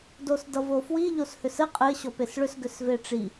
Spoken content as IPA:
d o s d ʌ v o f w i ʎ o s h ʏ s ɘ qʼ ɘ ɕ ɔ p e s ɭ ʏ s ɡ ʏ s v e ʈ͡ʂ i

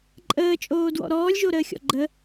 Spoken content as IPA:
ǃʼ əː t͡ʃʼ oː d w ɔ̰ ɾ ɔː lʲ ʒ o ɾ əː xʲ ɔ̰ ɡ͡ǃ ə

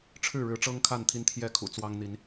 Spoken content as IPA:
ʈ͡ʂʰ ɻ̩˥˨ ɻ ɻ̩˨˦ ʈ͡ʂ ɤ˦ ŋ kʰ a˥˨ n t̪ʰ i˦ n t̪ʰ j ɛ˥˨ kʰ ṵ˨˩ t͡s w ɑ˦ ŋ n̪ i˨˦ n

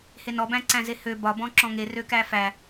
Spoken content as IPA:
h e n ɔ b æ̃ ǀ æ̃ z e h ø b ɒ b ɔ̃ ǁ ɔ̃ ŋ e r ø k æ f æ

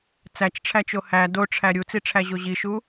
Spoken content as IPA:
t͡s æ t͡ʃ ʈ͡ʂʰ æ t͡ʃ o h æ d o ʈ͡ʂʰ æ ɾʲ u t͡s i ʈ͡ʂʰ æ ʑ o ʑ i ʃ u

